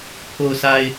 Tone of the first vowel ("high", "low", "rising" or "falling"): low